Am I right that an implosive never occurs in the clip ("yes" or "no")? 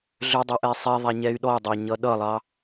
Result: no